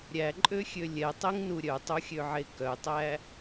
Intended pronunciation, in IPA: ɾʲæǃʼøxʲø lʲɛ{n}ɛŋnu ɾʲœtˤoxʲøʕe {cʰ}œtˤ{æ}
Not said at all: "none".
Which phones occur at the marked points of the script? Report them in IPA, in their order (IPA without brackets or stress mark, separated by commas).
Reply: tˤ, k, æ